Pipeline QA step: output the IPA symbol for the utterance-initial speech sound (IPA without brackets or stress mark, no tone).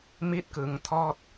m